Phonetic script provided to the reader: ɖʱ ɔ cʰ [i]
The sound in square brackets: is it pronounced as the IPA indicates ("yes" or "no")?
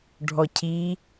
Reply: yes